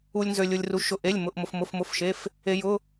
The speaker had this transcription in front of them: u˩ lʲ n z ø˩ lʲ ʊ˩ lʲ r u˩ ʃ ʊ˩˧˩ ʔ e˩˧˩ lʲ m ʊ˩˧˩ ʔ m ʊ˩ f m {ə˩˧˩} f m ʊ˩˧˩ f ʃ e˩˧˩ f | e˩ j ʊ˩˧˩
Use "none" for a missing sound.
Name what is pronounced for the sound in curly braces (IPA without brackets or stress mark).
ʊ˩˧˩